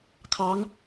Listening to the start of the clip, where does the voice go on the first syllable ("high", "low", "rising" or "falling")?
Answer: rising